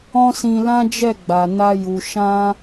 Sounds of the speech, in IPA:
ɔ̃˦ s ĩ˧ l ã˦ d͡ʒ ɛ˦˨ ɡ͡b a˨ n a˧ j u˨ ʃ ã˧

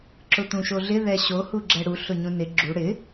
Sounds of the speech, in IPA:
ǁ ʊ t̪ ũ ʃ o ɮ ɪ ð ɛ ɕ o h u ɡ͡ǁ ɛ ɽ u ɬ ʊ ɲ ũ n ɪ ɡ͡ǁ u ɽ ɪ

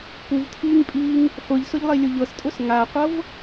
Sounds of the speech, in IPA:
p u v tʰ iː ŋ pʼ iː ŋ | χʷ ɨ ʎ s ʊ ʎ lˠ i lʲ ʊ ʎ ɤ s tʼ ʊ s ŋ a qʷ ɤ v

